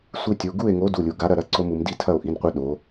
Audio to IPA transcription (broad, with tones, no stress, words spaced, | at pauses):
sʷi˦ tʲu˩˧˩ ɡu˥˨e̯ŋo˨˥ du˩˧˩lʲu˩˧ɡa˨˥ ɾɐ˥˨ɾɐ˦ǀo˦mu˩˧m di˥˨tʰɐ˥˨o̯ʔi˩˧˩nqʷɛ˦ ɗo˩˧